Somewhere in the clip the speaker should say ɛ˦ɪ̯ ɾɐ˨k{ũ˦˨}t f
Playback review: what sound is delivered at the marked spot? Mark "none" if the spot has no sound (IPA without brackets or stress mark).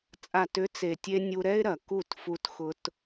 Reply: u˦˨